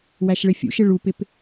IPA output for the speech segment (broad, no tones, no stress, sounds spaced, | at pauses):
w æ ʃ ɭ ɪ fʲ ṵ ʃ ɪ ɭ u p ɪ p